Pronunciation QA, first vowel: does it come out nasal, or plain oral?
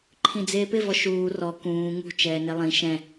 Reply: nasal